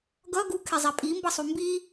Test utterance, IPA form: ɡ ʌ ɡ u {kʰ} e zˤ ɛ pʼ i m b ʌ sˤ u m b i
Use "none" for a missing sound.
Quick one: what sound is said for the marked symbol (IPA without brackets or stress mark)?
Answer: kʰ